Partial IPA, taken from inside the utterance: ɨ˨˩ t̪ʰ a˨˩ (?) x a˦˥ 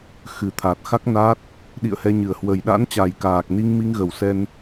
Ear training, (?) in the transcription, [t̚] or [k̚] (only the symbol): t̚